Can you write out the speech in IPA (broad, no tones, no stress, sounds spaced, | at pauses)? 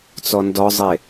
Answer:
t͡s ɔ n d ɔ zˤ e